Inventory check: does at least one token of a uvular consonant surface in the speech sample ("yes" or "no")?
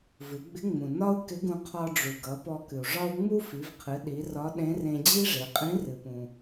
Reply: yes